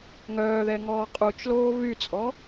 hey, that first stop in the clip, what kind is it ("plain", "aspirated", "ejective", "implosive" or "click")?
ejective